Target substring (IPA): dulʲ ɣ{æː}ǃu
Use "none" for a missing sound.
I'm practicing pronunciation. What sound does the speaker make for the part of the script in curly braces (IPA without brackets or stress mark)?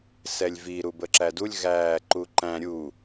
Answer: æː